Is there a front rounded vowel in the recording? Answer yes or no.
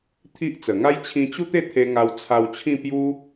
no